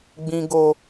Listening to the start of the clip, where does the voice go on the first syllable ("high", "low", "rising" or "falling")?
high